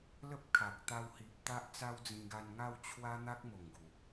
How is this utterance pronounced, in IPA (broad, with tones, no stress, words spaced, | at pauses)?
lə˦p̚ kʰa˨k̚ t̪a˧whi˨p̚ t̪a˦ʔt͡sa˦wd͡zĩ˧ɡa˧n ŋa˥˧wt͡ɕʰwa˦ n̪a˦k̚mo˨˩ŋɡu˨˩